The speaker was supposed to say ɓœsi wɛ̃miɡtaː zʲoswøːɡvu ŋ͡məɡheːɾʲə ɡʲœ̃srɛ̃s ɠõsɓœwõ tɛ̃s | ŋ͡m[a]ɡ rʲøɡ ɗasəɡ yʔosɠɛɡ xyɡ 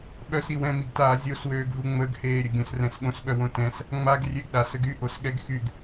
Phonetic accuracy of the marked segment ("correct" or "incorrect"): correct